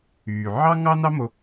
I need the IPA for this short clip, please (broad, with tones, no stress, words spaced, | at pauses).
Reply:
yː˨ ʕɑ˦ŋɑ˦nɑ˦mo˧